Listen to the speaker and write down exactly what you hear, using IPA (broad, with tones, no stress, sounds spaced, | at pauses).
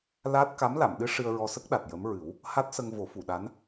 l aː˦˥ t̚ k a˧˥ m l a˨˩˨ m ɗ ɨ˧˥ ʂ ɨ˧ ə̯ ɹ ɔ˧ s ə˦˥ k̚ ɗ a˨˩ t̚ j ə˧˥ m ɹ ɨ˨˩˦ w | h a˦˥ t̚ s ə˧ ŋ v o˨˩˦ f u˨˩˨ ɗ a˧˥ n